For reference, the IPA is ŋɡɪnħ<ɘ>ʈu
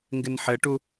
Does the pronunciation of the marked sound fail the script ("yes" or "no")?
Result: no